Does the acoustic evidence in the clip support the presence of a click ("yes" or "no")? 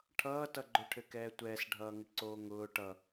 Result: yes